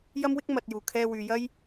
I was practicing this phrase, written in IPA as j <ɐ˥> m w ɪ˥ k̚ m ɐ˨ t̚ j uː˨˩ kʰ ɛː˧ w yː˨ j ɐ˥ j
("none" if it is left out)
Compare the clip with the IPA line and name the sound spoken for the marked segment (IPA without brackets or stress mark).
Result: ɐ˥